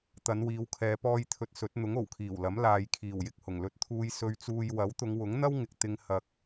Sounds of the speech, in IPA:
t̪ ɐ˨˧ n w iː˨˧ w kʰ ɛː˨˧ p ɔː˧ j t̪ʰ ɵ˧ t̚ s ɵ˨˥ t̚ n̪ ʊ˨˥ ŋ o˨˩ w kʰ iː˨˩ w l ɐ˨˥ m l aː˨ j kʰ iː˨˩ w j ɪ˨ k̚ h ʊ˨˩ ŋ l ɵ˧ t̚ t̪ʰ uː˧ j s ɵ˧ ɥ t͡s uː˧ j w ɐ˨˥ w t̪ ʊ˨˧ ŋ w ʊ˨˥ ŋ n̪ ɐ˥ w ŋ ɪ˨ k̚ t̪ ɪ˧ ŋ h ɐ˧ k̚

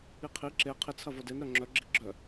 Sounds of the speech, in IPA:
i qʰ i ǁ e qʰ ɪ t͡sʰ ɐ v o d e n ɾ œ ŋ͡ǁ œ ɡ͡ǁ i ɡ͡ǁ œ

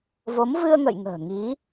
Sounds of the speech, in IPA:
v o˨˦ m v ɨ˧ ə̯ ŋ ə̰˧˨ j ŋ ə̤ː˨˩ ŋ i˨˦

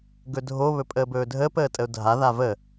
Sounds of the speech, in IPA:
ɡ ɵ dʱ o β ɵ pʼ əː b ɵː dʱ əː p əː tʼ ə ʊ̯ dʱ a ð a v ə

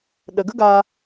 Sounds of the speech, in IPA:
ɗ ə˨ ɡ ə˦ ɡ aː˧

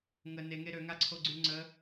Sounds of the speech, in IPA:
ŋ ə n e ŋ e ɾ ø ŋ a ǀʰ o ɡ͡ǀ y ŋ͡ǀ ə

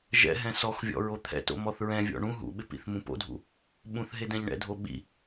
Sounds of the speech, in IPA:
ʒ ɛ̰ ɦ ɛ̃ s ɔ x vʲ ɔ̰ ɹ o t̪ʰ ɛ̰ t o̰ m ɔ θ ɹ ɛ̃ vʲ ɔ̰ ɳ ũ ɦ ṵ ɓ ɪ p ḭ θ m ũ p o̰ dʱ ṵ | ɓ ũ θ ɦ e d ɛ̃ ʎ ɳ ɛ̰ dʱ o ɓ ḭ

